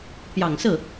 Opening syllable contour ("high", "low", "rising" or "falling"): low